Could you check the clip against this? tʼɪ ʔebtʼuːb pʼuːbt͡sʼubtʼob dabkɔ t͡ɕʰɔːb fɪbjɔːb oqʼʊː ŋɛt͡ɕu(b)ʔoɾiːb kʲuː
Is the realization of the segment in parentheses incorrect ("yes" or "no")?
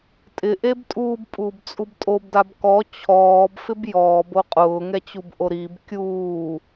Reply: no